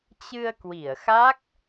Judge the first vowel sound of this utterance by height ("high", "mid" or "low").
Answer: high